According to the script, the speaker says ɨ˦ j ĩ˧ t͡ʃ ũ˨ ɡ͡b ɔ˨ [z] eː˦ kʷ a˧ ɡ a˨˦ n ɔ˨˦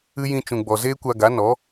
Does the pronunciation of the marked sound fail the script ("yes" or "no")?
no